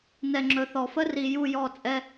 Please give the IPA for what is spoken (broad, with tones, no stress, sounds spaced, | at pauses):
n ɛ˨ ŋ͡ǁ ɵ˨ θ ɔ˨ f ə˦ r i˨ j u˦˨ j ɔ˦˨ t͡sʼ ɛ˦